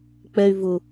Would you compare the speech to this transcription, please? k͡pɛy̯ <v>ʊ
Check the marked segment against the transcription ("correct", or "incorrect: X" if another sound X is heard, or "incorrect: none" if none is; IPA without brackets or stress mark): correct